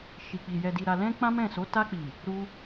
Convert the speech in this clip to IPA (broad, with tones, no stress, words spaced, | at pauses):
ʃi˨k͡pi˨ jɛ˨di˨ɾa˨lɛ̃˧ k͡pã˦mɛ̃˦˨so˨˦ ta˧k͡pi˨ | ɾu˧